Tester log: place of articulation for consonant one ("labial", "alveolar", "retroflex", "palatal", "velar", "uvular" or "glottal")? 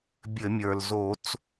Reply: labial